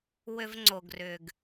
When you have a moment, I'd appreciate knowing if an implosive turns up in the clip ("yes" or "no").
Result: no